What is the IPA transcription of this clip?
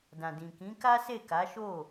dã˨dĩ˨kĩ˨˦ ka˦se˦˨ka˨˦ ʃo˦˨

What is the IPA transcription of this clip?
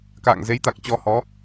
ka̰ː˧˨ŋze˨˦jt̪a˨˩k̚ t͡ɕɔ˧hɔ˨˦

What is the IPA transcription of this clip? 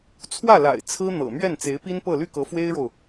t͡sʰwä˥˩la̰˨˩ɪ̯ t͡sʰɹ̩˥n̪ɤ̰˨˩mɥɛ˥˩n t͡se˧˥ɪ̯pi˥npɤ˥˧ ly˥˩kɤ˧˥ fwe˥ɪ̯ɻo˨ʊ̯

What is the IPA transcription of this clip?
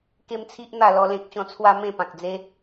ke˦mt͡sʰi˦ʔn̪a˥˧ lɔ˦lẽ˦k̚ɕɔ̃˦ t͡sʰwa˦ mẽ˥˧pã˨k̚ d͡ze˧

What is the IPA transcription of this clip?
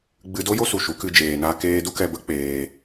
ɡ͡bɨ˧do˦jo˦ su˧ʃu˨˦ kɨ˧ d͡ʒeː˧naː˦keː˦ du˦kɛ˧bə˦ k͡peː˧

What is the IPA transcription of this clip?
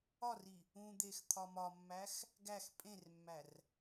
ɒri | ũ d̪ext̪ʰɒmɒmːæx | ɡæx pʼẽrmːær

